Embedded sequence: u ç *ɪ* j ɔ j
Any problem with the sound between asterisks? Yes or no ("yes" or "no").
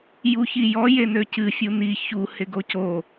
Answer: yes